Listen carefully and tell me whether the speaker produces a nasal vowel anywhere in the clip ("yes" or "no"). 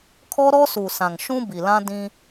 yes